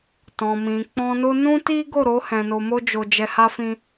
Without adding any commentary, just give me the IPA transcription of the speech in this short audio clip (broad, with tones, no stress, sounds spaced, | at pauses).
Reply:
t ɔ̃˨ m ĩ˨ k͡p ɔ̃˧ n o˦ n ũ˦ t i˦ ɡ o˦˨ ɾ o˨˦ h ɛ̃˧ n o˧ m o˦ d͡ʒ o˧ d͡ʒ ɛ˧ h a˦ f ĩ˦